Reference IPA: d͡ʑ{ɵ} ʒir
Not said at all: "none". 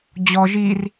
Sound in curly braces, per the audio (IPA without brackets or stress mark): ɔ